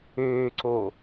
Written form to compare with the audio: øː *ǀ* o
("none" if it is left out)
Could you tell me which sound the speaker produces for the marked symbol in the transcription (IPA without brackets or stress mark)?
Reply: ǀ